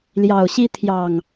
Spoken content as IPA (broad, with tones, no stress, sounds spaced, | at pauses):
l j ɑ˨˩ ʊ̯ ɕ i˦ t̪ʰ j ɑ˨˩ ŋ